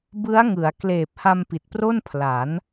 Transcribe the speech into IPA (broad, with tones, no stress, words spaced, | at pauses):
bɯ˦˥a̯ ŋɯ˩˦a̯ kleː˨˩p̚ha˧m pi˨˩t̚pro˥˩npʰla˩˦n